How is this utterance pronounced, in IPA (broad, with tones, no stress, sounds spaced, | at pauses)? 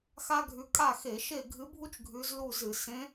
x a˥ ɡʱ ʉ˧˥ kʼ a˥˨ x e˧˩˧ ʃ e˥˨ ɡʱ ɨ˧˥ bʱ u˥ t͡ʃ ɡʱ ʉ˧˥ z l u˥˨ z ɨ˧˩˧ s ẽ˧˥